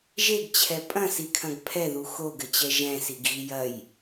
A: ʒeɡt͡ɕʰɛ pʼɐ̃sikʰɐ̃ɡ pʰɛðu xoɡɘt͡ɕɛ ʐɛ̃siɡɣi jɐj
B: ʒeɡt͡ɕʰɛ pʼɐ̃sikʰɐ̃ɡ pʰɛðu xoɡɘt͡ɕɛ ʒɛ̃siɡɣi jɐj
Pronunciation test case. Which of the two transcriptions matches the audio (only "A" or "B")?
B